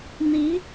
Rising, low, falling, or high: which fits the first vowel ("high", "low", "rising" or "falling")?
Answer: rising